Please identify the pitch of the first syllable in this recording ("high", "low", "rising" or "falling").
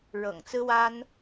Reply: low